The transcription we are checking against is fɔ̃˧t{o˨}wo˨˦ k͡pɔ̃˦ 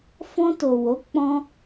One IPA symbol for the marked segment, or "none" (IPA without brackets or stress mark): o˨